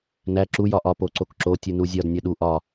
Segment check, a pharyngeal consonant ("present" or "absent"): absent